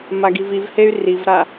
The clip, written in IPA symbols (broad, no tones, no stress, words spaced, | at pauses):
maɡivivhey̯ rivɾa